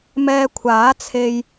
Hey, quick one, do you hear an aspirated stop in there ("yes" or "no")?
yes